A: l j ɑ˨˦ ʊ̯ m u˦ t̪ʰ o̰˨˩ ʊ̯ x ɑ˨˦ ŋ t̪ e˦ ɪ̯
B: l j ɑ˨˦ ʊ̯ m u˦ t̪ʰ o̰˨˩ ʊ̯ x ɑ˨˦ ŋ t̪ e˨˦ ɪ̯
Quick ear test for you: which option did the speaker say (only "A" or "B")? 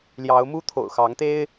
A